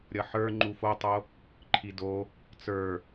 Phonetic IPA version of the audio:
ɾʲʌħə˞ ŋ͡ǃufotˤo | ǃʰido | t͡sə˞

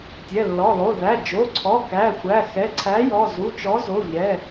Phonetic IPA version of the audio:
tʲɛ˩˧˩lːɔ˩˧˩lˠo˩˧˩ ðæ˩˧˩d͡ʒo˩˧˩ǀʰɔ˩˧˩ kæ˩˧˩xʷæ˩˧˩ xɛ˩˧˩ǀʰæ˨˥jɔ˩˧˩ zu˩˧˩t͡ʃɔ˨˥ zo˩˧˩ʎɛ˩˧˩

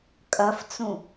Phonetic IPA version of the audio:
kʼɐft͡sũ

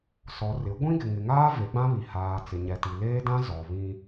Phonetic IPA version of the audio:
sɔ˨ rɪ˨˦ ɡʷĩ˦ɡɪ˨ŋɪ˨ŋaː˦ ve˨˦ɡ͡bã˦βi˨ haː˨ t͡sɪ˨ɲɛ˨ti˨ leː˦dã˦ zɔ˨βĩ˦

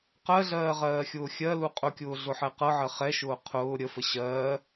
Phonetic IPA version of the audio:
qɜɮɜːʁɜːxʲʊː xʲɜlu qʼʊkʲʊːɮʊħɛ qɤʕɜ χɛʃʊː qʰʊː ɾʲəfə ɕɜː

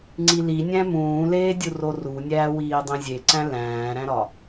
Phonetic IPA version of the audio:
ŋ͡ǀilinʲæ̃ mũːleːdʲuro runʲæːwiː dˤĩzʲeǀæ̃ læ̃ːɾæ̃ɾɒ

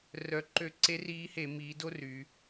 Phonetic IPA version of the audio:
rœ˨˩ ǃø˧˩˧ǀe˧˥ riː˧˥he˧˩˧ miː˩˧do˥˧ ry˩˧

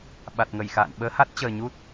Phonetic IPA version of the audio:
ɓa˨˩t̚ŋə˧˩jxa̰ː˧˨n ɓəː˨˦ha˦˥t̚t͡ɕəː˨˩ ɲu˦˥t̚

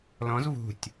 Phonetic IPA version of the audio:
lɔ̃z vṳtʲ

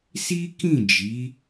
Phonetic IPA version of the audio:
si˦kĩ˦˨ d͡ʒi˨˦

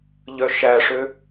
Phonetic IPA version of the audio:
ʎœʃæʂø

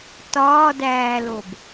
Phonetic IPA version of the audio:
tɒːdæːlob

